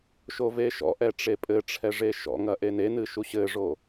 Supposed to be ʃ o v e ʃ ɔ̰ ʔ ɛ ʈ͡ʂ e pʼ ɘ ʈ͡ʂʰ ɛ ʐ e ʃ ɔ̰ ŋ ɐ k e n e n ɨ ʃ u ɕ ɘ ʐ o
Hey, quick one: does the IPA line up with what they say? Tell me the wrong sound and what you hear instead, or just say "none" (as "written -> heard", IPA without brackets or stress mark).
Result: k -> ʔ